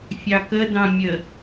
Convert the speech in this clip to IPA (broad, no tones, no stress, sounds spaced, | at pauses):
fʲ ɑ k ə d ɑ̃ mʲ ə